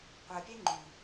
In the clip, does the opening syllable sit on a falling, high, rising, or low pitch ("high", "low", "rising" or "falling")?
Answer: low